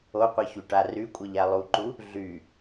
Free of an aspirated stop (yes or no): yes